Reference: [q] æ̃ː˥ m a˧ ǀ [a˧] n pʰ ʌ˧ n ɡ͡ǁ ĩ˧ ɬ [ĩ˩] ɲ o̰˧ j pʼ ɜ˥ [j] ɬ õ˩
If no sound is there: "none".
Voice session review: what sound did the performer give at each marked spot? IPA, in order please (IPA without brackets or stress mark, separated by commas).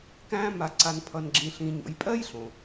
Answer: k, a˧, ĩ˧, j